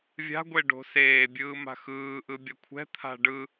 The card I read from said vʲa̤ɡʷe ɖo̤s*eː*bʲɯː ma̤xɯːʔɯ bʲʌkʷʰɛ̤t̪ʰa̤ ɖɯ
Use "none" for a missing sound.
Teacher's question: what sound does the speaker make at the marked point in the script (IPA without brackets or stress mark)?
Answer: eː